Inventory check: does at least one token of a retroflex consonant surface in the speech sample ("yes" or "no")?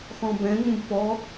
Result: no